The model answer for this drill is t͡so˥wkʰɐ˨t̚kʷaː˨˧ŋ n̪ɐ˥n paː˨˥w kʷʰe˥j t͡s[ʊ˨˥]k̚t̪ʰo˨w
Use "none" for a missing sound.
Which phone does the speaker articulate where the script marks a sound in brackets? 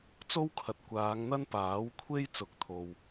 ʊ˨˥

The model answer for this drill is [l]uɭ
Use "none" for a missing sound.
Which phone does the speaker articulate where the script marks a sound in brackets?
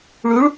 ɭ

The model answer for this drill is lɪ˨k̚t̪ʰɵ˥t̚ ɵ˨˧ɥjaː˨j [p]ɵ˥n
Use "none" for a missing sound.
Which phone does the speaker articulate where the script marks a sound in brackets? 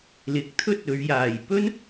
p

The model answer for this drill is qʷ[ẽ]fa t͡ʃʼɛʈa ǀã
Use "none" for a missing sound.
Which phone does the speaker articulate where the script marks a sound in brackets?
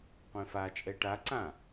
ẽ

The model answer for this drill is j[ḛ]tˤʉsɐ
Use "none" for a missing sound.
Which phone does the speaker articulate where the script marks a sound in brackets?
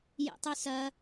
ḛ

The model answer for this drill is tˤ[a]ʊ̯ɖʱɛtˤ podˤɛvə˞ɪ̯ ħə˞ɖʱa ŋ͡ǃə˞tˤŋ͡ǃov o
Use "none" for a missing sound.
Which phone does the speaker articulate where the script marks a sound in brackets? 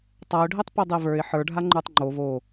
a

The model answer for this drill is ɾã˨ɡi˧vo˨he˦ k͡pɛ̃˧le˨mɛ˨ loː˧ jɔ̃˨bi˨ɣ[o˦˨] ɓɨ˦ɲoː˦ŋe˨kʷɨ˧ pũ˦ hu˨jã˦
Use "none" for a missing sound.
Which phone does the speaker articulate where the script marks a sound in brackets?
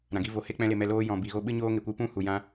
o˧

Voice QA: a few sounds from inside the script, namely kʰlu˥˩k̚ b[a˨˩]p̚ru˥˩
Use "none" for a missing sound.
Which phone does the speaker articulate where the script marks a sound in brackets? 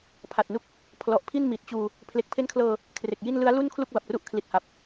a˨˩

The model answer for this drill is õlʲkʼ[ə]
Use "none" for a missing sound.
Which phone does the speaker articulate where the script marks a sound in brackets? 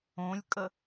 ə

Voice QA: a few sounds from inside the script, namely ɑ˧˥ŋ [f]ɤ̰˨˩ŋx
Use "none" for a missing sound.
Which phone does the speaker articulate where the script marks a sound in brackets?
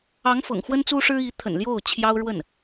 f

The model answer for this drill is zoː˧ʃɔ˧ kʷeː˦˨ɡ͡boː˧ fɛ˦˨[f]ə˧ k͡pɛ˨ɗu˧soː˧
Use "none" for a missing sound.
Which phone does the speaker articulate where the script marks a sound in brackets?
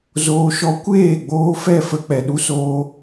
f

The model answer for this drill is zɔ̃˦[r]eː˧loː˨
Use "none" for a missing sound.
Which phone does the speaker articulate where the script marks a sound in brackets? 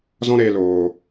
ɾ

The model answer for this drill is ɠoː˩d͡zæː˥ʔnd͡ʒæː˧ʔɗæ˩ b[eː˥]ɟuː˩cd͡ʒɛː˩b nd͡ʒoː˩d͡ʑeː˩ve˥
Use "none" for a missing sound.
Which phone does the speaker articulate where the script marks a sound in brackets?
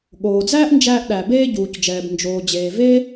eː˧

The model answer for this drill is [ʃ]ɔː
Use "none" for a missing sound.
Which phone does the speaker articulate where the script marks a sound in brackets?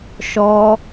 ʃ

